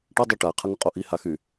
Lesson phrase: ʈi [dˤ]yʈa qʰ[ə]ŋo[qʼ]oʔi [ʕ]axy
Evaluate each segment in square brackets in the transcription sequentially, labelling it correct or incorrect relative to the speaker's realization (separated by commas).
correct, correct, correct, incorrect